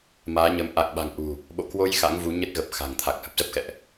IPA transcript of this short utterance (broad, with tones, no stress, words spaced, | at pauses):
maː˨˦ɲə˨˦m ʔa˨˩k̚ɓa̤˨˩ŋʔṳ˨˩ | ɓo̰˧˨kwo˧j xa̰˧˥ŋvu˨˦ɲə˦˥t̚ɣə˨˩p̚ xa̤˨˩ŋt̪ʰa˨˩k̚hə˦˥p̚ zə˦˥p̚xɛ̰˧˨ʔ